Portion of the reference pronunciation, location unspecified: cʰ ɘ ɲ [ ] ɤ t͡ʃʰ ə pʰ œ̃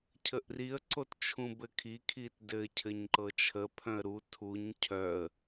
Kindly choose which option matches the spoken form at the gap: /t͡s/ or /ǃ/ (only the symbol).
ǃ